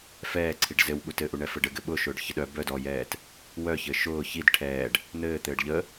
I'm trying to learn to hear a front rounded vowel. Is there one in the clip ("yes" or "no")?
yes